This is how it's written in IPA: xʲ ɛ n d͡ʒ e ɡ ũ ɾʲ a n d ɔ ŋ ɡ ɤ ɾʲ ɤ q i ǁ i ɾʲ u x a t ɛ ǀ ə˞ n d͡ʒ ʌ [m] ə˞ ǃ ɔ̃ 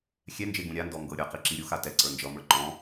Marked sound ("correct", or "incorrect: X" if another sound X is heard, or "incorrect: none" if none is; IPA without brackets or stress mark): correct